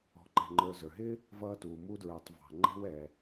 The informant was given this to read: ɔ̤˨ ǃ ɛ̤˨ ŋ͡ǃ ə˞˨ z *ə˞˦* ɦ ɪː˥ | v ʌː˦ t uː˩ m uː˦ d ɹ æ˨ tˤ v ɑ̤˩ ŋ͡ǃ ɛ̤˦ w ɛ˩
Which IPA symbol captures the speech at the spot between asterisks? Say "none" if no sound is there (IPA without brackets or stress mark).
ə˞˩